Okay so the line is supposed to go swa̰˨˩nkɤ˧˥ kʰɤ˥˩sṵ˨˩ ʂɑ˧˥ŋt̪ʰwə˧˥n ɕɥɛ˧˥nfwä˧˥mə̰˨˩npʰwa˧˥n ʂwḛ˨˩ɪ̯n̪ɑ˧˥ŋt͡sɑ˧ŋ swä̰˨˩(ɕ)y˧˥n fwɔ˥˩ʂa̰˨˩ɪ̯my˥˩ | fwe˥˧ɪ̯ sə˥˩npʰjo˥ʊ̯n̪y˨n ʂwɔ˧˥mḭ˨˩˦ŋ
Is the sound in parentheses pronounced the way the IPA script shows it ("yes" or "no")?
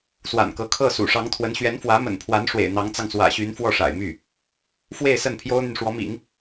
yes